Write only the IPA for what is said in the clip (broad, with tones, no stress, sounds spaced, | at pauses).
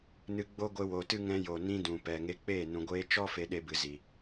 n ɨ˧ ɡ͡b o˦ ɡʷ e˧ w o˨ t ɨ˦ ŋ ɛ̃˧ j o˨ n ĩ˦ d ũ˨ p ɛ˨ ŋ e˧ k͡p eː˦˨ n ũ˨ ɡʷ eː˧ t͡ʃ ɔ˦ f e˧ ɗ e˧ b ɨ˨ z i˨